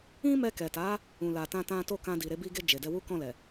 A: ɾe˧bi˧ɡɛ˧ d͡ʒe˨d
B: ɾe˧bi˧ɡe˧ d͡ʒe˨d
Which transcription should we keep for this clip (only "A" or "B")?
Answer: B